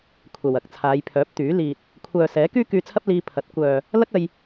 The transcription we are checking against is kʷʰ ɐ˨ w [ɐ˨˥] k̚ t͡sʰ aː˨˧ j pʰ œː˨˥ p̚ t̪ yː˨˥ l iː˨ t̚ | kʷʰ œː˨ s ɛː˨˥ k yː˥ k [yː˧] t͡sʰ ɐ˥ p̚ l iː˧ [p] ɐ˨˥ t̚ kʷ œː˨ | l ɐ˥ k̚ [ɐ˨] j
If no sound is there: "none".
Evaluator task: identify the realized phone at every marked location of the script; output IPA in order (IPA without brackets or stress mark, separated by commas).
ɐ˨˥, yː˧, pʰ, ɐ˧